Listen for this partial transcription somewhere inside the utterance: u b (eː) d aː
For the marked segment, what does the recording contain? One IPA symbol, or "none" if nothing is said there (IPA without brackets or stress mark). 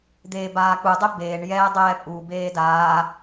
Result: eː